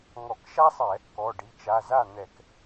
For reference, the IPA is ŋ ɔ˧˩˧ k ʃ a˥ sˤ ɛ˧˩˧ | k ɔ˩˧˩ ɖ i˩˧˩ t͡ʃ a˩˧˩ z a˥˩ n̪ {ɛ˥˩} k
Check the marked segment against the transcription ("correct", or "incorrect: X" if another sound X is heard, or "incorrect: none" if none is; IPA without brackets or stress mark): incorrect: ɛ˧˩˧